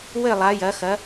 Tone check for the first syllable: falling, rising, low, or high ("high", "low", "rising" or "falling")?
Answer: falling